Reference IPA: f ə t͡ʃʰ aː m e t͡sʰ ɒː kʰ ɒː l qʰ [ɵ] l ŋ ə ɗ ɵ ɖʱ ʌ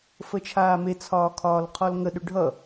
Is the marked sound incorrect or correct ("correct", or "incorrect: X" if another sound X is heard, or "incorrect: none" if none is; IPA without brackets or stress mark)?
incorrect: ɔ